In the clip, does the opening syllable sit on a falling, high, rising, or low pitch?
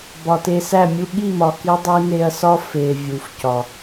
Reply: low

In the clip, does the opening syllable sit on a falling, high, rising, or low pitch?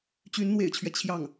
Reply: rising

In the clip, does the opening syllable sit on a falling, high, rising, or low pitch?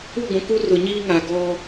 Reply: falling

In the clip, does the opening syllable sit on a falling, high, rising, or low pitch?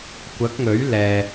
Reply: rising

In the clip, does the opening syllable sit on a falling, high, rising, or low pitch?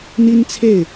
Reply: high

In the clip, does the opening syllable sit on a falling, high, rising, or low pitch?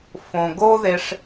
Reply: low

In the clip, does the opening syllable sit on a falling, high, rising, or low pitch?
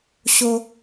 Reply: high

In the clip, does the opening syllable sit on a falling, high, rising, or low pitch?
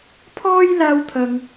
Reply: high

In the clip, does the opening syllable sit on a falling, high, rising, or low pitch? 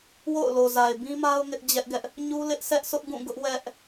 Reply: falling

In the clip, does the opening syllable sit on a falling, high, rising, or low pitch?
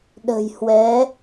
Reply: low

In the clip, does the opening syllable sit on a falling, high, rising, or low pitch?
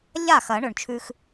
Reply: falling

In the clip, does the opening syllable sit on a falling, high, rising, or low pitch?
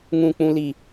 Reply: high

